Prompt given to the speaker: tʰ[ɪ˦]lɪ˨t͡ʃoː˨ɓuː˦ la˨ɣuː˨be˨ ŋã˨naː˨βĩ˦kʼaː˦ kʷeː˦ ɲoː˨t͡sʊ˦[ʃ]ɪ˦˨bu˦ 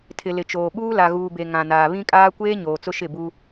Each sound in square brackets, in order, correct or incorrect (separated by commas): incorrect, correct